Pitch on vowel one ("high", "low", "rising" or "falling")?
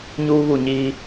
high